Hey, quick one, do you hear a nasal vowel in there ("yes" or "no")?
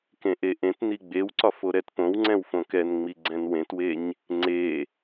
yes